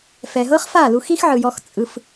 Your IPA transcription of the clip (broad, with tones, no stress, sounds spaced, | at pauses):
f ɛ˨ ɦ ɤ˦ χ f a˦˨ l u˧ x i˦ x ʕ ɯ˨ j ɔ˧ x t͡sʼ ɯ˧ f